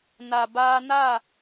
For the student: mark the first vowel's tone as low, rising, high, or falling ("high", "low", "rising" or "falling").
low